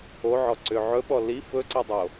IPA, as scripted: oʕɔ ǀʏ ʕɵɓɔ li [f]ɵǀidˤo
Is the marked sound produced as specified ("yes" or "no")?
yes